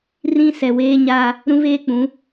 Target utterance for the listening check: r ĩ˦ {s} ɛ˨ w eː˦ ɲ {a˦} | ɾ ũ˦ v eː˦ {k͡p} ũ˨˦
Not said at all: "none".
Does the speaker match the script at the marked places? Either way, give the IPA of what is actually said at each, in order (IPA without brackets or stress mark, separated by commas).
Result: s, a˦, k͡p